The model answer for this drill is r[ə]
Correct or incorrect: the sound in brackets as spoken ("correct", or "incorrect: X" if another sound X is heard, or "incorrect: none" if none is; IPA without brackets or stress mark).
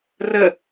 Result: correct